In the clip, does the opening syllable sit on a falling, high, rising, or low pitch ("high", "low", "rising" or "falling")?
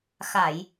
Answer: low